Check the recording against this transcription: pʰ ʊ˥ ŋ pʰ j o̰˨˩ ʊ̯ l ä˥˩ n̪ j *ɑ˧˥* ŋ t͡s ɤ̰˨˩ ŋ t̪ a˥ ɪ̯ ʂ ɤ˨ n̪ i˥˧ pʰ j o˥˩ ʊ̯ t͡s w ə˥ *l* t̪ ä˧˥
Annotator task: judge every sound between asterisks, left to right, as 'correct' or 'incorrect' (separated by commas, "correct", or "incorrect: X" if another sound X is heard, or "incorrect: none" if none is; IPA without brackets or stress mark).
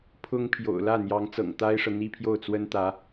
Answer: correct, incorrect: n